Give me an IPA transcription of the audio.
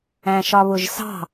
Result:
æ̃ ʃ ɒ β ʊ ʒ s ɑ̤

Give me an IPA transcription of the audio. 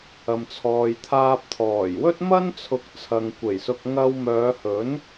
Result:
ɐ˨ m t͡sʰ ɔː˨ j t̪ʰ aː˧ p̚ t̪ʰ ɔː˨˩ j w ɵ˥ t̚ m ɐ˥ n t͡sʰ ʊ˨˥ k̚ t͡sʰ ɐ˨ ŋ kʷ e˨˩ j s ʊ˧ k̚ ŋ ɐ˧ w m œː˨˧ h ɵ˨˥ n

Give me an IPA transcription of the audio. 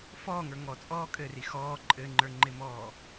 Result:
f ɔː ŋ ə˞ ŋ ɔ t͡sʼ ɔː kʼ ɘ r i x ɔː ǃʼ ɘ ŋ͡ǃ ə˞ ŋ͡ǃ ɪ m ɔː

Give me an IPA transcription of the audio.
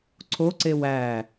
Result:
ǀʰ o ǀ e w æ

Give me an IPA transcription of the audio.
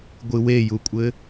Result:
ɡʷ ɨ w e j u kʷʼ ɘ

